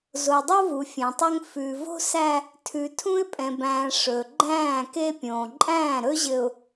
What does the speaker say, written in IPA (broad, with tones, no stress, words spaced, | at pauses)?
zo˨dˤo˦vu˨ fʲẽ˨tˤɵ˦ŋ fʉ˨vo̤˦sæ˦ | tʰʉ˨tʰũ˦ɪ̯pʼɛ̃˨bæ̃ː˨ ʂɵ˨ ɡ͡ǃæ̃ː˦˨ke˦pʲõː˨ ǃʼæ̃ː˦˨ɾɵ˦ʑɘ˨ʊ̯